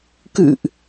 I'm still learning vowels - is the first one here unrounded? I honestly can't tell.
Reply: yes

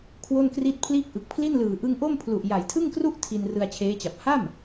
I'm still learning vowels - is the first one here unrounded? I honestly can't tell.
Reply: no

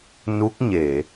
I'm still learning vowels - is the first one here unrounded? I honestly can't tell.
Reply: no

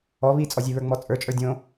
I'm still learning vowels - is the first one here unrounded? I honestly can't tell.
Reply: no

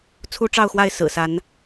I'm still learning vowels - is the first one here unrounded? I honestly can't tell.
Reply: no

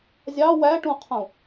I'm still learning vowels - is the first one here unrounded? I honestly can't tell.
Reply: yes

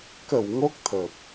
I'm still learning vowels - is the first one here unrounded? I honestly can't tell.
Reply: yes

